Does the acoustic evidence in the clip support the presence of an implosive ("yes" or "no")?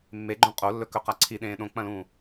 yes